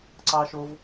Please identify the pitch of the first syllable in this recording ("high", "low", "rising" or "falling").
high